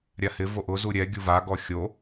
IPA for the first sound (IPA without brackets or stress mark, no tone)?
ɾʲ